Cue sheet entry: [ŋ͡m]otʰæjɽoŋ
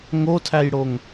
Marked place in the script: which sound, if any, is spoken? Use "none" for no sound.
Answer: ŋ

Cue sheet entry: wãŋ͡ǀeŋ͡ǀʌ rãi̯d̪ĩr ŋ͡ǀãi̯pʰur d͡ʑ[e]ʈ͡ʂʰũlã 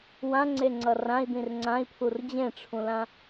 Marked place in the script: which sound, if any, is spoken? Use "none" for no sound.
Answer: ẽ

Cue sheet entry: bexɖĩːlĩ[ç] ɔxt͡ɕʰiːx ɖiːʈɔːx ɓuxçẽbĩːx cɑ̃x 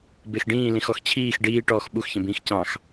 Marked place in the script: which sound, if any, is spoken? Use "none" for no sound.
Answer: x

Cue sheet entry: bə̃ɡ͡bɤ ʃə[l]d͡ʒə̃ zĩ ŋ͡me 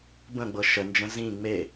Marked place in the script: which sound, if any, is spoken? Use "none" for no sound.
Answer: n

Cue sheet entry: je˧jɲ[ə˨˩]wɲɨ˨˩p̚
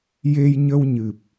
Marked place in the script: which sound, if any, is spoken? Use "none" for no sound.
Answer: ə˧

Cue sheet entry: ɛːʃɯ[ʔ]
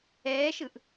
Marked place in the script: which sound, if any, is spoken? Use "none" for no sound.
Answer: ʔ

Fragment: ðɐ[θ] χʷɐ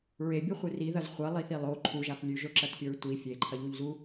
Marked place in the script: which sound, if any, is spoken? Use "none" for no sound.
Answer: z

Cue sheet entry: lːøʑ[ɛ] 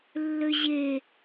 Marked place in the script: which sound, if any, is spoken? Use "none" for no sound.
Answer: e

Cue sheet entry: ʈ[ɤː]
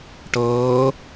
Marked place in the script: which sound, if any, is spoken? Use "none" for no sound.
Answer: ɤː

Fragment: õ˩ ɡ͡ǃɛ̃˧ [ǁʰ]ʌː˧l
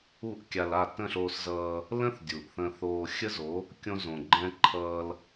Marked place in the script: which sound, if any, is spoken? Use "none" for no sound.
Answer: ǃʰ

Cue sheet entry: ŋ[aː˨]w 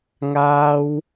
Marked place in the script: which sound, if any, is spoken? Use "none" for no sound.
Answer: aː˥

